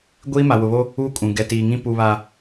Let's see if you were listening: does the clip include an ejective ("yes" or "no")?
yes